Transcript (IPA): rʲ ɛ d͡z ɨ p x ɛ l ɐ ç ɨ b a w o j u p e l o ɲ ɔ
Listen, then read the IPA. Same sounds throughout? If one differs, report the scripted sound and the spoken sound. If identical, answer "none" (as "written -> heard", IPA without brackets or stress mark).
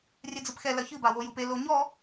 none